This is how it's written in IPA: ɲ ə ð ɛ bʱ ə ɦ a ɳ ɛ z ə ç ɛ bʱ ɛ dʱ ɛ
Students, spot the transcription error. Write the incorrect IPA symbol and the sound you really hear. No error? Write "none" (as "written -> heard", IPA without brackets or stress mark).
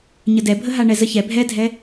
ð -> d